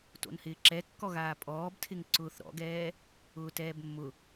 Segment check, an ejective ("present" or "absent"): present